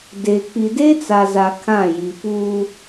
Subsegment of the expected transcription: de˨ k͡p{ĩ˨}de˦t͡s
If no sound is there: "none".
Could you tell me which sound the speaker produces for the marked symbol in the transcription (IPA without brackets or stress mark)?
i˨